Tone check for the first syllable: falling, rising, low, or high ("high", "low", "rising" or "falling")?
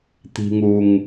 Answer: low